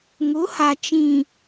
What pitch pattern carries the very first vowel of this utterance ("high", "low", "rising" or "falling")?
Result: rising